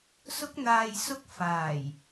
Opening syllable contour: high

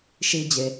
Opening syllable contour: low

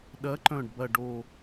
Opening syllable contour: rising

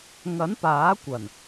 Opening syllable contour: rising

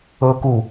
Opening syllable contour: high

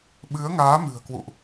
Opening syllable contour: rising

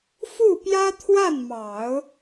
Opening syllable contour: falling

